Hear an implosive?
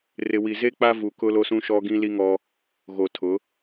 no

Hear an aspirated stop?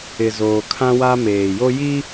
yes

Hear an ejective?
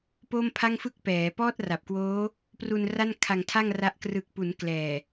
no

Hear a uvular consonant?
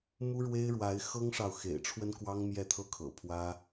no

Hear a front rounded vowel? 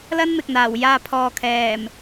no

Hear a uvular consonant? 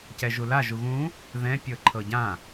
no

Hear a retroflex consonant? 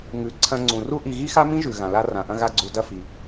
no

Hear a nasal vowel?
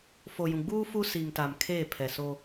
yes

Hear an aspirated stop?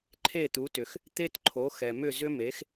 yes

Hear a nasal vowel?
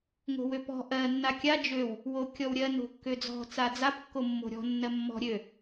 no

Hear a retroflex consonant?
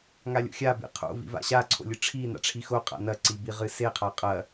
yes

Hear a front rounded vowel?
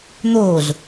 no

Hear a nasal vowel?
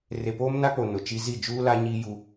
no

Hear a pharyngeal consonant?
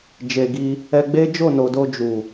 no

